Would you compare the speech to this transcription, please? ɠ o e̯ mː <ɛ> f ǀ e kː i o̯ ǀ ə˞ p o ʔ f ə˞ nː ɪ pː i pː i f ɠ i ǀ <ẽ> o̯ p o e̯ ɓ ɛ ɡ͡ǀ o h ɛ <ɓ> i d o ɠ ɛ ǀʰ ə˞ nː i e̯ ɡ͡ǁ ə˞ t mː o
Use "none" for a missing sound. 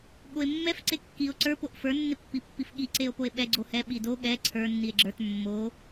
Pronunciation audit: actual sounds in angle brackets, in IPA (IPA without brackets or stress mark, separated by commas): ɛ, e, ɓ